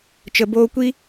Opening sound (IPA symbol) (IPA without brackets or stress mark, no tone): t͡ʃ